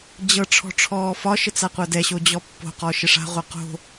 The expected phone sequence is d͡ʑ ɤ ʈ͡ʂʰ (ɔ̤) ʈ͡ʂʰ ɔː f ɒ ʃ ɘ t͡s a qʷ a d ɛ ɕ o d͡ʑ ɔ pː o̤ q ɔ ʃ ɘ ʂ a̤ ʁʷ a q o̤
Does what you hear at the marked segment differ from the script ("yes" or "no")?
no